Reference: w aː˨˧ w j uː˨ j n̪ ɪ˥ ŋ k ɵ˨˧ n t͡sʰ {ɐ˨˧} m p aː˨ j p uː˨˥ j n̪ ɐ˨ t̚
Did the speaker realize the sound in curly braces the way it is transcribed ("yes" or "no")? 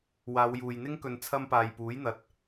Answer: no